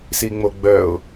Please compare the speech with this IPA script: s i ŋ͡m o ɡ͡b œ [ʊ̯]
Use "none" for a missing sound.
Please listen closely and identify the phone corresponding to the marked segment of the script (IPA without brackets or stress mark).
ʊ̯